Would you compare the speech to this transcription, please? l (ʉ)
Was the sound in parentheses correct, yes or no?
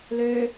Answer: no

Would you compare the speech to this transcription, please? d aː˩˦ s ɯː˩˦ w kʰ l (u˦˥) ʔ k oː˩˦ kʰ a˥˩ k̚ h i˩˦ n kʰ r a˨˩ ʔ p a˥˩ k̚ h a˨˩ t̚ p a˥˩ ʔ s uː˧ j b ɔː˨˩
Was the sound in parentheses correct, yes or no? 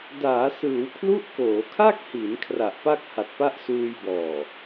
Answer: yes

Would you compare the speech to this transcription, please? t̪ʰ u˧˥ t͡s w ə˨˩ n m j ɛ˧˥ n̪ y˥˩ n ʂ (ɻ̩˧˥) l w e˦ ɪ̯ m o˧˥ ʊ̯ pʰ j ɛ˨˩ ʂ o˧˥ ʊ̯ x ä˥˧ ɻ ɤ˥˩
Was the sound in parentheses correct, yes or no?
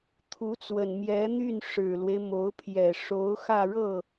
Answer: no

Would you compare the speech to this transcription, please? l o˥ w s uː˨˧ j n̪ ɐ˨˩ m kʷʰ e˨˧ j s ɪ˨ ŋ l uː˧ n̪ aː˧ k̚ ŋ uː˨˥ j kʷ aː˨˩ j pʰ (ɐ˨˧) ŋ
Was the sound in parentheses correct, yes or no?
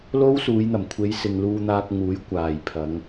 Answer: yes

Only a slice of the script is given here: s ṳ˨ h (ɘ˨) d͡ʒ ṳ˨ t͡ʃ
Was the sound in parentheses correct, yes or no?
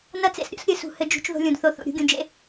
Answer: yes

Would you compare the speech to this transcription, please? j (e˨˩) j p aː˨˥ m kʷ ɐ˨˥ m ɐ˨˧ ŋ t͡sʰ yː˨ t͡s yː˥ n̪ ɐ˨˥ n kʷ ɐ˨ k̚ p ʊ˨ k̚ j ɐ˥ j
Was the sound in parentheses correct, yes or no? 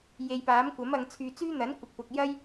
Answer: no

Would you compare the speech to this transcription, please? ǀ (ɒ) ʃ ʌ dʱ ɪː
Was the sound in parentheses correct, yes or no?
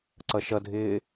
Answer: no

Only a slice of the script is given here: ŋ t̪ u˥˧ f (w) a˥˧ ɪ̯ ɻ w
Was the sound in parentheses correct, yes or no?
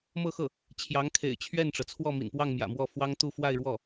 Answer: yes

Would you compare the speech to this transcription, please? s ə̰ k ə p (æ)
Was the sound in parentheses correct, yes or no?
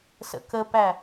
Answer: yes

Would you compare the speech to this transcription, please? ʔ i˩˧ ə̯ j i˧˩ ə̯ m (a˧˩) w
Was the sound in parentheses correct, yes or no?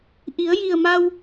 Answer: no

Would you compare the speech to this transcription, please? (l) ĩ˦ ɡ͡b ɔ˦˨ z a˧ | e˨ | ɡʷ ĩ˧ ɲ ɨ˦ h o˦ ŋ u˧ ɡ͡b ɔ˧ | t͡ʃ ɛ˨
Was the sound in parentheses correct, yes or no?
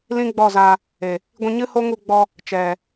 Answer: yes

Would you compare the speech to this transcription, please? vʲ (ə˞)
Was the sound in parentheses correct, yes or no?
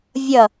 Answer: no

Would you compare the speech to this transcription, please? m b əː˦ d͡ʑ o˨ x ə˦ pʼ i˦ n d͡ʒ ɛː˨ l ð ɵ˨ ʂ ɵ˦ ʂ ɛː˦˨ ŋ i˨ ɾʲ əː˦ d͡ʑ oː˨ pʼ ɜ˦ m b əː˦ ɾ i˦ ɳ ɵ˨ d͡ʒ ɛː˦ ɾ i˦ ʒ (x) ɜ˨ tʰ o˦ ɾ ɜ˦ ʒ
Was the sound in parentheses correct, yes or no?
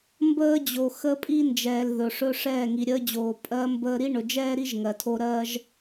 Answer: no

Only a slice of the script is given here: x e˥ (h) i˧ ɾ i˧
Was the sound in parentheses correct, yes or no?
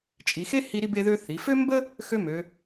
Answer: yes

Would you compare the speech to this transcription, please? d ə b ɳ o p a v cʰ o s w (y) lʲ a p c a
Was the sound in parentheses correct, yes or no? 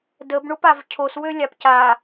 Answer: no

